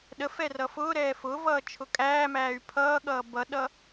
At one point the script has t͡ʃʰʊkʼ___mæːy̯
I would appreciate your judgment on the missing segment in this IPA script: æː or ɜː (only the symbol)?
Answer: æː